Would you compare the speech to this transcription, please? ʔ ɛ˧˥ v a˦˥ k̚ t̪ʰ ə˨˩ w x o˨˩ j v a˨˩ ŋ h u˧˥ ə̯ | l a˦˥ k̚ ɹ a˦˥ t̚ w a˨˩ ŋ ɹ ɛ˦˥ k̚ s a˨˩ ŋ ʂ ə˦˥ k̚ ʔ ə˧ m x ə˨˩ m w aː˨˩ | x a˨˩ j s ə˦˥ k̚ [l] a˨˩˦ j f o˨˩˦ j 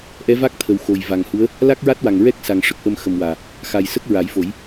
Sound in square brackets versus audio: incorrect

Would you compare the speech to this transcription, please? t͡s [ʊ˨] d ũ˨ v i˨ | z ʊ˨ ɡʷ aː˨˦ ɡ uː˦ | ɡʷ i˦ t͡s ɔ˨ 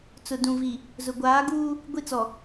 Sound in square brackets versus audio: correct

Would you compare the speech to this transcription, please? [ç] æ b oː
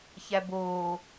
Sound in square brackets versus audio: correct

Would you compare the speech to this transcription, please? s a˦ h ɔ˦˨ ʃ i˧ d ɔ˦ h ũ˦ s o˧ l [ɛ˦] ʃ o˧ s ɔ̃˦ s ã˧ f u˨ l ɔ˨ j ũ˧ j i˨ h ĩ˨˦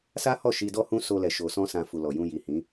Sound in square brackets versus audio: incorrect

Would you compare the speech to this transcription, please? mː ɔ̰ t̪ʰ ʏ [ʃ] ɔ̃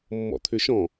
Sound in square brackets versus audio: correct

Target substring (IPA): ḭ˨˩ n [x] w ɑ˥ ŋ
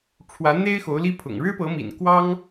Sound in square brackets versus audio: incorrect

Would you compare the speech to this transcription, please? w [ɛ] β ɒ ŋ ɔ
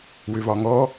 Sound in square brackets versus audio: incorrect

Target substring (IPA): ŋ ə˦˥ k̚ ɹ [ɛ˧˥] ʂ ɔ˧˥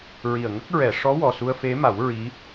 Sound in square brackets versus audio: incorrect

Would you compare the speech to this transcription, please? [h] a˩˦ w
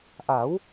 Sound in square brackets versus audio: incorrect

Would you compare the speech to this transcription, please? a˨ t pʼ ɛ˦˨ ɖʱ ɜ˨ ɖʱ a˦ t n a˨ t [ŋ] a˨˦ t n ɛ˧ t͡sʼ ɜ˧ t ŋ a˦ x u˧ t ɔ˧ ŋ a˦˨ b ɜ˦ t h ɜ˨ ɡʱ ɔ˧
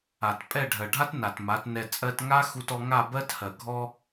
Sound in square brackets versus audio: incorrect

